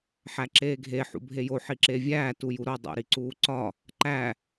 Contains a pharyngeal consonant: yes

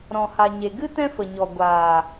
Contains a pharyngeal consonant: no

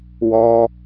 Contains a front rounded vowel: no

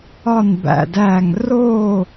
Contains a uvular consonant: no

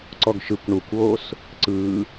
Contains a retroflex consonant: yes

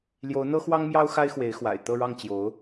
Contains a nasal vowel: no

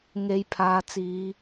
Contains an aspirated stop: yes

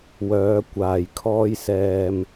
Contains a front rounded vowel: yes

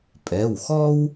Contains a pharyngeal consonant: no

